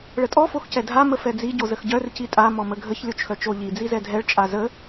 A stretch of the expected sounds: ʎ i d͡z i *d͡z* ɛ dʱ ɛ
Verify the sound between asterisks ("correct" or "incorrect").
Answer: incorrect